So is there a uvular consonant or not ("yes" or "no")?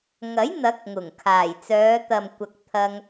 no